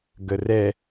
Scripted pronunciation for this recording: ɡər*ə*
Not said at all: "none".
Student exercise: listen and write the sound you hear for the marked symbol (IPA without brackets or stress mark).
ɛ